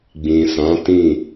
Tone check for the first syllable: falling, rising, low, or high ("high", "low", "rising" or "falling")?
low